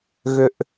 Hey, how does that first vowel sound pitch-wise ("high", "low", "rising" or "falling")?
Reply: low